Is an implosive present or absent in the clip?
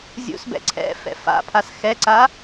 absent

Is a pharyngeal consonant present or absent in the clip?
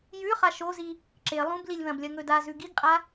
absent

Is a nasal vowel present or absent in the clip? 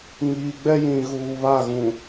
present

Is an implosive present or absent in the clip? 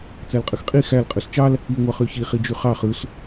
absent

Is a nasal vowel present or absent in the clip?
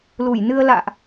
absent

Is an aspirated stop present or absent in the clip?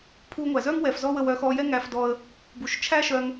present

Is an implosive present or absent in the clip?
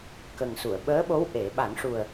present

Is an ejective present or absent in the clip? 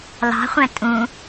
present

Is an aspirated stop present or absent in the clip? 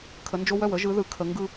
present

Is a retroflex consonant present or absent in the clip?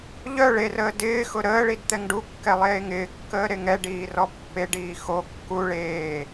present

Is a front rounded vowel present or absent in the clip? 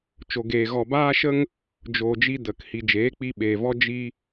absent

